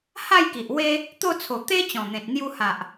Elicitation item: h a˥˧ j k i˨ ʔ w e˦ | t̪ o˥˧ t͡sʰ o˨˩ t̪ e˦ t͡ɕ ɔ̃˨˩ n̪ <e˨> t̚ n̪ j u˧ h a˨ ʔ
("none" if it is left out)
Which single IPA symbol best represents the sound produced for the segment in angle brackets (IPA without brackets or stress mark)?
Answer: ẽ˨